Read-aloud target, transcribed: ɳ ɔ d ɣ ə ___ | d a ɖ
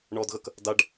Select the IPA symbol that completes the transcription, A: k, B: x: A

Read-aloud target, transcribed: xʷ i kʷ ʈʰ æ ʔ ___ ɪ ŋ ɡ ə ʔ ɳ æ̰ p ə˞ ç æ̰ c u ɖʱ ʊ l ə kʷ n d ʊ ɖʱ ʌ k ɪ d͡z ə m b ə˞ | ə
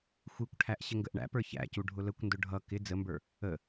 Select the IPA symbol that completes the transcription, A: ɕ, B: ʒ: A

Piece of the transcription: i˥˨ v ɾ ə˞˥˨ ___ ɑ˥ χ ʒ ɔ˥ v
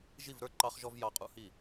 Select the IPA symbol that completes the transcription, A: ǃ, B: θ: A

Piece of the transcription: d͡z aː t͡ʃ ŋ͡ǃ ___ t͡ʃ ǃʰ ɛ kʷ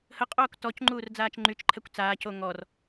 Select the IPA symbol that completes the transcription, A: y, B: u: A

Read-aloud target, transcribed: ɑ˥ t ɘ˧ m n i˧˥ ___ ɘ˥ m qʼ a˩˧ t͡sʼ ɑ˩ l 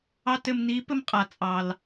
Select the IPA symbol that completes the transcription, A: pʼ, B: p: B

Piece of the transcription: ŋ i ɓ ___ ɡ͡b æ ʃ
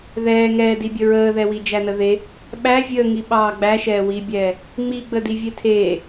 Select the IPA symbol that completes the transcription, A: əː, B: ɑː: B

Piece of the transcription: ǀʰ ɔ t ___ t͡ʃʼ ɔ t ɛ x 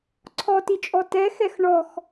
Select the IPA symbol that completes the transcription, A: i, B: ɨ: A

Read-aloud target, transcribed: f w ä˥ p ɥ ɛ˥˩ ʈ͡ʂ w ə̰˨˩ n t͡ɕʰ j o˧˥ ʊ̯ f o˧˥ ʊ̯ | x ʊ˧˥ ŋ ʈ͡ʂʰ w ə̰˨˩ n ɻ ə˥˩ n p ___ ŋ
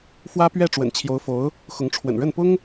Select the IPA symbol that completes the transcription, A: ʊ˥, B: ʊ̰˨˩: A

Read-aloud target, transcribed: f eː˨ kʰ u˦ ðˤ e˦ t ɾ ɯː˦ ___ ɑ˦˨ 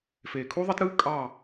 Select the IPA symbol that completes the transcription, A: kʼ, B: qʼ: A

